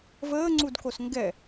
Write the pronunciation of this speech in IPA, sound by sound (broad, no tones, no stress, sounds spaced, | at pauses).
v əː ŋ͡ǀ u d k o s ŋ ɡ ɛ